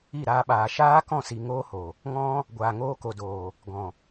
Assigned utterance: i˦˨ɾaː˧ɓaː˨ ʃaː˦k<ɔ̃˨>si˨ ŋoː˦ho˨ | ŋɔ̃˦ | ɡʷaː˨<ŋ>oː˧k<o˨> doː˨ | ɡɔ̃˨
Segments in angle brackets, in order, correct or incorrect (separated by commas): incorrect, correct, correct